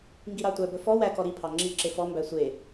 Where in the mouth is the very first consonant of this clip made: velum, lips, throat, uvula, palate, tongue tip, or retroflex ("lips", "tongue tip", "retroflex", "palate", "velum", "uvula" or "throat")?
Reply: velum